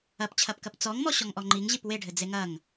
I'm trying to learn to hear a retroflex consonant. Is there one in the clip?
yes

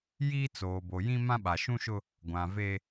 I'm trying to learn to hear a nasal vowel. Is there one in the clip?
yes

